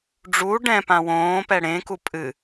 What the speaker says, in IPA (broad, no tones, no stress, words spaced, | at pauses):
ɖ͡ʐu ɖɛ̃pã wõːpɛ ɽẽku pʼɨ